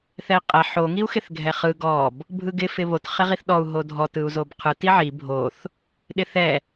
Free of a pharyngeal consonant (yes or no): no